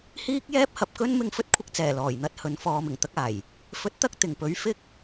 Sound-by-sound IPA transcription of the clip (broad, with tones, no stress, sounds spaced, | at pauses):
h iː˥ k̚ j ɛː˥ p̚ h ɐ˨˥ p̚ k ɵ˥ n m ɪ˧ ŋ f ɵ˥ t̚ kʷʰ ɪ˧ k̚ t͡s ɛː˨˩ l ɔː˨˩ j n̪ ɐ˥ t̚ h ɵ˨˥ n f ɔː˨ m ɪ˨˩ ŋ t̪ ɐ˧ k̚ aː˨˩ j | f ɵ˨˥ t̚ t̪ ɐ˧ k̚ t̪ ɪ˨˩ ŋ p ɵ˨˥ ɥ f ɪ˥ k̚